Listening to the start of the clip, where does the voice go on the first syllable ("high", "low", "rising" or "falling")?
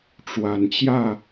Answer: low